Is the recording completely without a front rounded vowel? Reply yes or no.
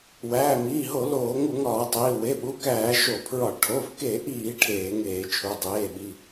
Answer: yes